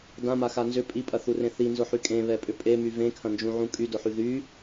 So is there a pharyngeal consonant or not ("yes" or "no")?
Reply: yes